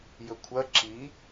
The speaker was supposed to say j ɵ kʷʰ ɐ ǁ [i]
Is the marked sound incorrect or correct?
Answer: correct